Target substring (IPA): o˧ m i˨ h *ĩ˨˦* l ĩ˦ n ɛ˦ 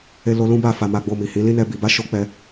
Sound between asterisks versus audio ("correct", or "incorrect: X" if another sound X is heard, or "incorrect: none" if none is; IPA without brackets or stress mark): correct